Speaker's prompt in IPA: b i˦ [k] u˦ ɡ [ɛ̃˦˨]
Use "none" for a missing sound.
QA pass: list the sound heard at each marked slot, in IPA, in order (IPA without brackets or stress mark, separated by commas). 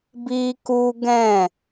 k, ɛ̃˦˨